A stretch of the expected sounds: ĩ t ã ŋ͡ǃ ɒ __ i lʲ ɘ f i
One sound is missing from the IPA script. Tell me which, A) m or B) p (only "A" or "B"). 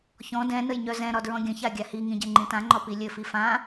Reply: B